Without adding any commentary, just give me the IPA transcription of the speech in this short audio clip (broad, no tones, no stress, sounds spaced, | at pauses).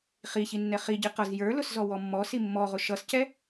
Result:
χ i ç i nː ɛ χ i ɟ i q ʌ z j ə˞ l ʊ s z ɔ w ɔ mː ɔ s i mː ɔ ʁ ʊ ʃ ʌ s c ɛ